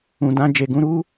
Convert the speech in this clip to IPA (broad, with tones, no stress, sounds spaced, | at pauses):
ũ˨ d ã˧ d͡ʒ e˨ ɡ ũ˧ ɾ u˦